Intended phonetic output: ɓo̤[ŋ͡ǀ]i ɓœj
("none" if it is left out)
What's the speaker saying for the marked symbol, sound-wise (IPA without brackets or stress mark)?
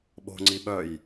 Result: ŋ͡ǀ